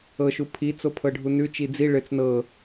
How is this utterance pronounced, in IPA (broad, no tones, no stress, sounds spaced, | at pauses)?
ɤ ʃ u pʰ i t͡s o pʰ ɤ ɖʱ u n ʉ t͡ʃ i d͡z i ɭ ɘ t͡s n ɤ